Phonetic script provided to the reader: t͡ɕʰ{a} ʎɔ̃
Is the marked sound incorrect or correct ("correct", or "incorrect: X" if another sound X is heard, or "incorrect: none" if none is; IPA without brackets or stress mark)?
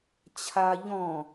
correct